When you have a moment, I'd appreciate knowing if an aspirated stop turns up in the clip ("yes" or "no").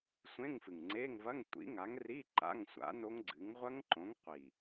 no